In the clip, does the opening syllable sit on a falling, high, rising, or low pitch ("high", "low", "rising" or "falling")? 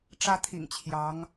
high